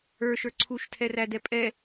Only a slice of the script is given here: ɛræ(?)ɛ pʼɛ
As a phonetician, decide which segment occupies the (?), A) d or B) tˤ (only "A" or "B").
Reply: A